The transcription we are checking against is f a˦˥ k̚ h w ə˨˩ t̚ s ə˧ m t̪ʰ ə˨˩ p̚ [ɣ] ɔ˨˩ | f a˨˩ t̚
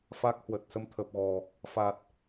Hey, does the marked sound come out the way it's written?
yes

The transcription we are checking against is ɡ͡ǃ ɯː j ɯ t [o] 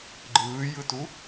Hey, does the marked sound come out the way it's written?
no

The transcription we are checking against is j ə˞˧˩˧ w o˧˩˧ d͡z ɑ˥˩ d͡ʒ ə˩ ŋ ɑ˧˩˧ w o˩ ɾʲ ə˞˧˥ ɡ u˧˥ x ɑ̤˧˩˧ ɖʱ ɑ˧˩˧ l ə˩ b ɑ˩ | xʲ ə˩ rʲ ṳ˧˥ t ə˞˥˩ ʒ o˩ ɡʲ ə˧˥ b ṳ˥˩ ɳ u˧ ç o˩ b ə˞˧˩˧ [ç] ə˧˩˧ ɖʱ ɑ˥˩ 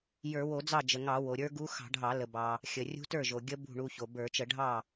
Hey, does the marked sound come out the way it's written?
no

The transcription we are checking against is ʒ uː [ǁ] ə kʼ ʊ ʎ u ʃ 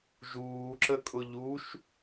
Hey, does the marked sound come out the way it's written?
yes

